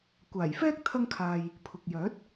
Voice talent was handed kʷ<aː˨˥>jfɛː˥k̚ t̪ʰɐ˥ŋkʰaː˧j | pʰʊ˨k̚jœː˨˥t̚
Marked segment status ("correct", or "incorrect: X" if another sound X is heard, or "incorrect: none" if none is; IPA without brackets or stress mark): incorrect: aː˨˩